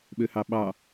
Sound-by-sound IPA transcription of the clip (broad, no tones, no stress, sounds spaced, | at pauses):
ɓ ø h ɑ ɓ ɑ